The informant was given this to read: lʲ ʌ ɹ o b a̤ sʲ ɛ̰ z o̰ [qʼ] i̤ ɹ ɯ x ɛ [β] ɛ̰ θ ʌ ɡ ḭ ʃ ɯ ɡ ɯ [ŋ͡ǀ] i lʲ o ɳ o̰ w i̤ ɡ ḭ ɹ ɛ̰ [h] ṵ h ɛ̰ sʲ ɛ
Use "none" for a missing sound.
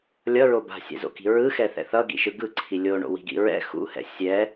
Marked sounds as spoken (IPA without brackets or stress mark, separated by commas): k, θ, ǀʰ, x